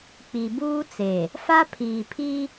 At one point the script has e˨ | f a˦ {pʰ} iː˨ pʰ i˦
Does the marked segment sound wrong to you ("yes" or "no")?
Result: no